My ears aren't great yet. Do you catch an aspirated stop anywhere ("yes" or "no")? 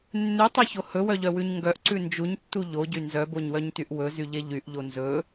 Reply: no